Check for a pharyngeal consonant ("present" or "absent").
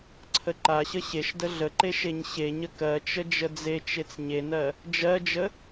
absent